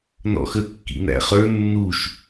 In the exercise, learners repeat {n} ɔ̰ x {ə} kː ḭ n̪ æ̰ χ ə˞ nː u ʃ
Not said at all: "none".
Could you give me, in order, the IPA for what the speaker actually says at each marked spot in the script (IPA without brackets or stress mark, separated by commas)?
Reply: n, ə